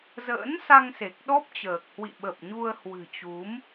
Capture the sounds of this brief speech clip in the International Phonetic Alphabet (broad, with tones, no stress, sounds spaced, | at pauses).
z ə̰ː˧˥ n s a˧ ŋ s e˨˩ k̚ ɗ ɔ˦˥ p̚ t͡ɕ əː˨˩ k̚ h w ḭ˧˨ ɓ ə˨˩ p̚ ɲ u˧ ə̯ h w ɨ̤˨˩ t͡ɕ u˨˦ m